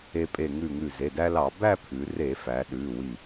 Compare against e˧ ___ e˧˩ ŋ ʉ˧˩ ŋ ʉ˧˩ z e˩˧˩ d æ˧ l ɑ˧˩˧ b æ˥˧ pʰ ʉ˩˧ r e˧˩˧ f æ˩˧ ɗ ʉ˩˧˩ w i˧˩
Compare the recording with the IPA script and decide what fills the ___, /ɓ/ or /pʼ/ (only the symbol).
pʼ